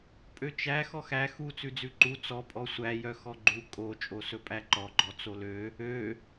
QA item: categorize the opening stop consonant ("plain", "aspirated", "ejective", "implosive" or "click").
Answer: ejective